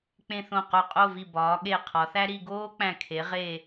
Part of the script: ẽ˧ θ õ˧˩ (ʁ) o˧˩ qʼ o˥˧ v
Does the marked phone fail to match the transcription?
yes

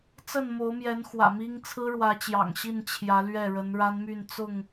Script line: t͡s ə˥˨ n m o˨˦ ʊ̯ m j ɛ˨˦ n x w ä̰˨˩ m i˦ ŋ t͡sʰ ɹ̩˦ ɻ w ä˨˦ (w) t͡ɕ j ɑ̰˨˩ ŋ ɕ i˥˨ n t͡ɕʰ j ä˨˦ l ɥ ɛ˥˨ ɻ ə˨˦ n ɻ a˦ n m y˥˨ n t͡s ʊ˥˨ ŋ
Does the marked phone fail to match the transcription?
yes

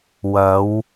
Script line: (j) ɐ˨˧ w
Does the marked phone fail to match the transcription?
yes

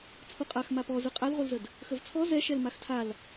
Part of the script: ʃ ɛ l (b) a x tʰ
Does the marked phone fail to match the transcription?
yes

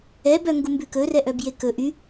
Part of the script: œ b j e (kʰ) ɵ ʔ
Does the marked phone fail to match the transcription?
yes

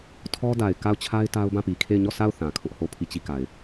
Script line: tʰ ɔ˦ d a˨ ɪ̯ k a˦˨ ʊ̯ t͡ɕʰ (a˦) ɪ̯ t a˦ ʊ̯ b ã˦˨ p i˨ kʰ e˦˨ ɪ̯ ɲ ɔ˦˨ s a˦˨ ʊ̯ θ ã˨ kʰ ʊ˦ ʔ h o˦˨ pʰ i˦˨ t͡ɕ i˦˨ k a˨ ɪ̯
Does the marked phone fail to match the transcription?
no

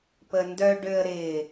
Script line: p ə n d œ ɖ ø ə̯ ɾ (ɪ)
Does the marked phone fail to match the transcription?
no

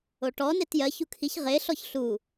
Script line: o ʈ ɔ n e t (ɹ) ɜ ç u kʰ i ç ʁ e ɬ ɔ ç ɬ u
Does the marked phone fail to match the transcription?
yes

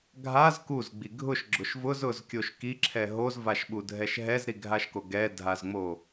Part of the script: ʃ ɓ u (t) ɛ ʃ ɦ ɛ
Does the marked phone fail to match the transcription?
yes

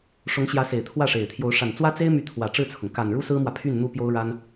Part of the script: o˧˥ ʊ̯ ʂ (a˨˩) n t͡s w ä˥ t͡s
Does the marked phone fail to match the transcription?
no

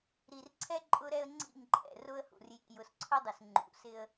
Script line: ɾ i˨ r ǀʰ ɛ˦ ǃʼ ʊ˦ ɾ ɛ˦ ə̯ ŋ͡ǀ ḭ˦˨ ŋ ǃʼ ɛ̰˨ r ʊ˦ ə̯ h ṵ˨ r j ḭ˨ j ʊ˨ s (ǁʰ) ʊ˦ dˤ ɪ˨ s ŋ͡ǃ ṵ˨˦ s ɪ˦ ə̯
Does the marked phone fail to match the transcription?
yes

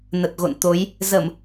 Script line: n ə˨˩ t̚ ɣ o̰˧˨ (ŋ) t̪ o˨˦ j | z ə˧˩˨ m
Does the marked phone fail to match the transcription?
yes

